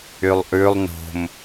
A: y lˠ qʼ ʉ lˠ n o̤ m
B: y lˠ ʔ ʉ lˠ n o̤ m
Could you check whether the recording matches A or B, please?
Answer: B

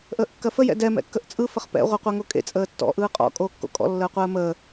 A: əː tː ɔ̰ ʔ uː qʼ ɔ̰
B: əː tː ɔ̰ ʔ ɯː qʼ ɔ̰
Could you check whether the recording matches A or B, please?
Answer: B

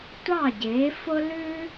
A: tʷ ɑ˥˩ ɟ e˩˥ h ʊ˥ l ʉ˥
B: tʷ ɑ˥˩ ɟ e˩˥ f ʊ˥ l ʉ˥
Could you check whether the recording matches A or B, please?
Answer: B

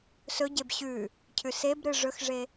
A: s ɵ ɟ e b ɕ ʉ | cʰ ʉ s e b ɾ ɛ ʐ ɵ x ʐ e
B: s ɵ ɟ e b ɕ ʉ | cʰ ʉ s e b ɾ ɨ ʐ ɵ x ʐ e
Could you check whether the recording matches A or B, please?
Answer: B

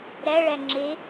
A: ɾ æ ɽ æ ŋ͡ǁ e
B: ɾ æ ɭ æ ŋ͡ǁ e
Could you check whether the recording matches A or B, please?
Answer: B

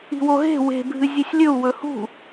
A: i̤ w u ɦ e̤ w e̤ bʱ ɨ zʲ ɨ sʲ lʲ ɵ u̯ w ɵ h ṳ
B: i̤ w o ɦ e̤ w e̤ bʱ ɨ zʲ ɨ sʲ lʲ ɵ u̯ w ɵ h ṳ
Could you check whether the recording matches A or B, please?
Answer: B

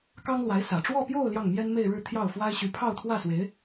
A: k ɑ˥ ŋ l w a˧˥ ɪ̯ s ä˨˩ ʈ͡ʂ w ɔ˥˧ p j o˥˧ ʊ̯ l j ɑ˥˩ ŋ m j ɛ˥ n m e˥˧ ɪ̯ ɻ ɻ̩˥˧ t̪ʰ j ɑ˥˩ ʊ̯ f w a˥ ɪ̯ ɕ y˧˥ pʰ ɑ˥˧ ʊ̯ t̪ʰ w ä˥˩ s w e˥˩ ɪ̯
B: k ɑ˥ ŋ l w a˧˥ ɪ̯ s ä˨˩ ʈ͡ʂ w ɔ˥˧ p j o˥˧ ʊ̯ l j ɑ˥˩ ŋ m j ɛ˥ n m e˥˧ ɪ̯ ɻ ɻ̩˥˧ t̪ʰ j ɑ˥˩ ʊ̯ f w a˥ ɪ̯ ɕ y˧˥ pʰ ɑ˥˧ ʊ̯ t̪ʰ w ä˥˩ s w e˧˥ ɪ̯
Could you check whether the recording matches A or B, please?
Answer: B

